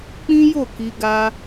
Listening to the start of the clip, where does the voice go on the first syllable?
high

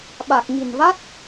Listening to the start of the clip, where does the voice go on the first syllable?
low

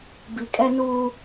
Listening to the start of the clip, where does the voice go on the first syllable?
low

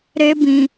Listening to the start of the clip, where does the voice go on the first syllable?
high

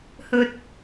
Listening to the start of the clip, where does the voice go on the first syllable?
low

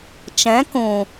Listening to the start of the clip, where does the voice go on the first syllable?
rising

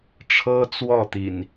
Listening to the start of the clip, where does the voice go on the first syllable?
high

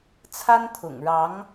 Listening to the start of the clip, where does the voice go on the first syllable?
high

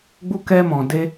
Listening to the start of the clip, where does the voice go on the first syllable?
high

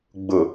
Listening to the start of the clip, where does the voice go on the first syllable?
low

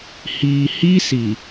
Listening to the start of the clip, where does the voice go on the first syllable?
low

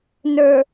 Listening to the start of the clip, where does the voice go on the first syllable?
low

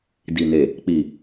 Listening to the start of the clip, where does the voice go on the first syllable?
low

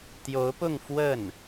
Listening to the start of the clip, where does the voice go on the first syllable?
rising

